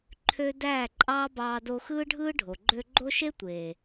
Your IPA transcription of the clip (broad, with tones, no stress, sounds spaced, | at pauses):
ǃʰ ø˦ d æː˦˨ ǃʼ ɑː˦ b ɑː˧ d o˧ x ɯː˦ ɖʱ ɯː˦ ɖʱ o˨ ɡ͡ǃ ø˧ ɡ͡ǃ o˦ ʃ e˦ tʷ eː˨